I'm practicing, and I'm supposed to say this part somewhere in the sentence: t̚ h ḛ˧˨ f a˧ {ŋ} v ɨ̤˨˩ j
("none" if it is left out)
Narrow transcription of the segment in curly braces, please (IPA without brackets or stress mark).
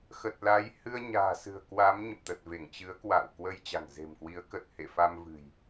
m